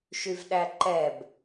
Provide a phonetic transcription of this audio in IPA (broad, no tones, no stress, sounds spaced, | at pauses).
ʃ y v ɗ æ ǃ ɛ b